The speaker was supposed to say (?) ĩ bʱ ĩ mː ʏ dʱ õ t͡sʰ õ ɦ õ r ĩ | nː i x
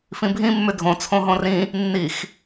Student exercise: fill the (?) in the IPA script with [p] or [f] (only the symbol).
f